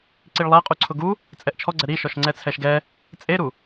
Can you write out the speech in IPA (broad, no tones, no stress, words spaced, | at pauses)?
ǀiɭlˠaqʼuǀʰʊ ɡu | t͡sʼɛʔt͡ʃʰɔɡ͡ǀɛ ɾiʃɔʃŋ͡ǀɛ t͡sʰɛʃɡɛ | t͡sʼeɾu